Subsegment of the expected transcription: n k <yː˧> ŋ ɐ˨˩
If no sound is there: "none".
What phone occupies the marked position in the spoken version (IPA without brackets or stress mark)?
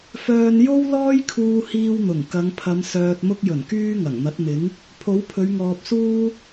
yː˧